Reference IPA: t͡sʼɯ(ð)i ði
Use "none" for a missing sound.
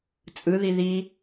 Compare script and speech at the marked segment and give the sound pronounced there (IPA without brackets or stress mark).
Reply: ð